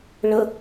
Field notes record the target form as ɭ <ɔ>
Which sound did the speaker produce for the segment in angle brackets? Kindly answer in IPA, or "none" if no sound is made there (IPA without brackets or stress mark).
ə